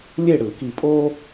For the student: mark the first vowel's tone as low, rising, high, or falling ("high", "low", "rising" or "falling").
falling